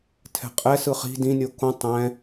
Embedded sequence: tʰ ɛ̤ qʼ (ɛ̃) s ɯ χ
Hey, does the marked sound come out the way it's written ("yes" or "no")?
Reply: no